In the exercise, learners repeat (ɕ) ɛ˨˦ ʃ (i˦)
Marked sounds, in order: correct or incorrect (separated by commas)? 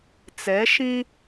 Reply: incorrect, incorrect